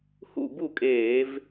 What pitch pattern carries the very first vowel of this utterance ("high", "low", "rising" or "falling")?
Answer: falling